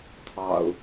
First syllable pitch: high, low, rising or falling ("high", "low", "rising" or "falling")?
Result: low